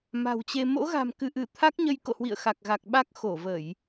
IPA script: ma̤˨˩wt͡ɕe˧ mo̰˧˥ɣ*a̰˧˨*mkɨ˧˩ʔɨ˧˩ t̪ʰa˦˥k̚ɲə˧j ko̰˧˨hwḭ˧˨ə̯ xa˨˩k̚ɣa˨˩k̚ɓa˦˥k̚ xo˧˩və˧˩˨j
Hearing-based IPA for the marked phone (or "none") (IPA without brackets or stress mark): a̤˨˩